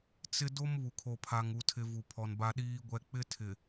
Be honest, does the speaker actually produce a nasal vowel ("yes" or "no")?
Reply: no